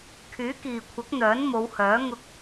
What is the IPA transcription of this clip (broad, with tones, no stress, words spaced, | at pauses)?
kʰyː˨˥kiː˨kʷʰɐ˨˥k̚ n̪œː˨˥nmo˨˧whœː˨˥ ŋʊ˧k̚